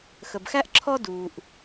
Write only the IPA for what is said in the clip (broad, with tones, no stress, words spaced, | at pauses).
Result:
xə˩bxæ˦ʔ ǁʰɔ˦duː˩ʔ